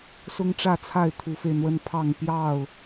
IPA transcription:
s ʊ˦ ŋ ʈ͡ʂ ä˥˨ t͡sʰ a˥˨ ɪ̯ t̪ʰ u˨˦ f e˧ ɪ̯ n̪ w ə˦ n pʰ ɑ˥˨ ŋ p j ɑ˥˨ ʊ̯

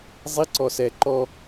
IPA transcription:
zˤ i ǀ ɔ s ɛ ǃ ɔ

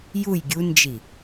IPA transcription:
j u j ɡʲ u n d͡ʒ i

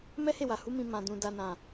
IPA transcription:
m ɛ˦ h e˦˨ w a˨ h u˨˦ m ĩ˧ m ã˨ d ũ˨ d a˧ n ã˨

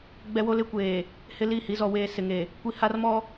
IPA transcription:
ɡ͡b ɛ˦ w o˦ l ɪ˦ kʷ eː˨ | h ɪ˦ l i˦˨ h i˦ z ɔ˦ w eː˦ s ɪ˨ ŋ e˨ | kʷ i˦ h a˦ r m ɔ˦

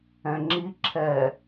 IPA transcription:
ɛ̃ ŋ͡ǁ i ǁʰ ɛ

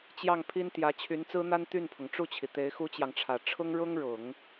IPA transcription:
t͡ɕ j ɑ˥˩ ŋ pʰ i˥ n t̪ j ä˧˥ t͡ɕʰ y˧˥ n t͡s ɹ̩˥ n̪ a˥ n t̪ y˥˩ n pʰ ʊ˩ ŋ ʈ͡ʂ u˥˩ t͡ɕʰ i˩ t̪ e˧˥ ɪ̯ x u˥ t͡ɕ j ɑ˨ ŋ ʈ͡ʂʰ ä˨˩ ʈ͡ʂʰ ʊ˥ ŋ ɻ ʊ˥ ŋ ɻ ʊ˨˩˦ ŋ

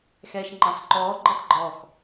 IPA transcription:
x ɛː ʃ ŋ͡ǃ ã sˤ ǃ ɔː ɡ͡ǃ ɛ tˤ ɡ͡ǃ ɔ x

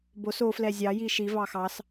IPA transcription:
b o s o f l ɛ zʲ ɑ j i ʃ i v ɑ x ɑ s

